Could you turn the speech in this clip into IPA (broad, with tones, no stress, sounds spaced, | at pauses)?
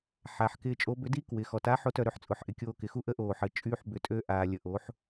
ħ aː˩˧ ħ k ɪː˧ t͡ʃʼ o˧˥ b ʏ˧˥ d i˥ k w ɪː˩ x ɔ˩ t a˧˥ ħ o˧˥ t œ˧ ɾ ø˧˥ ħ t͡sʼ ʊ˩˧ ħ ʔ ɪ˩ kʲ oː˧ k ɪ˩˧ x u˥ ʔ ə˧˥ ʔ oː˩ ħ ə˩ t͡ʃʼ yː˧ ħ b ʏ˩˧ tʼ ø˧ ʔ aː˩ lʲ ə˩ ʔ oː˩˧ ħ